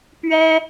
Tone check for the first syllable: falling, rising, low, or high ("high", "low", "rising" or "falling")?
high